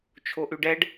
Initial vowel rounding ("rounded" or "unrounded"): rounded